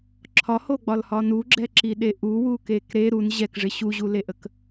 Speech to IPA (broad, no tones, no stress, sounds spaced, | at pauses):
ǁʰ ɒ h o ɡ͡b ɒ l h ɒ n u ɡ͡ǁ ɛ ǁ i ɗ e ʔ u w u k e k ɾ e ɾ u n ʑ ɛ k ʐ ɪ ɕ u ʑ u l e ʔ ə k